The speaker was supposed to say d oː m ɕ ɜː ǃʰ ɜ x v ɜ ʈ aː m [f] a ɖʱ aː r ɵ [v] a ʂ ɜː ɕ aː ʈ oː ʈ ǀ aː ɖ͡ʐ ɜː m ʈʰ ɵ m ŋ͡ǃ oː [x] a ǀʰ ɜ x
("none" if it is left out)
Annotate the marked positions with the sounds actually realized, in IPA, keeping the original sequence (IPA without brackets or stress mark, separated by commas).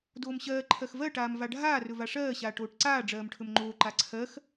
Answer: v, v, ǃ